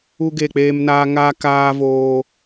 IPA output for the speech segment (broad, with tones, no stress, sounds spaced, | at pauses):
u˦ ɡ e˦˨ k͡p eː˦ m n aː˦ ŋ aː˦ k aː˦ v oː˦